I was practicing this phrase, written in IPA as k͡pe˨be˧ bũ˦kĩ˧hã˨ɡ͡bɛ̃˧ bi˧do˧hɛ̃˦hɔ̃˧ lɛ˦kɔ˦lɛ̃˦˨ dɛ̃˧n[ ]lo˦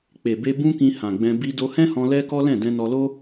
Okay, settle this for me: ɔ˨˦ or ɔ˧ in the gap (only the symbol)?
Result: ɔ˧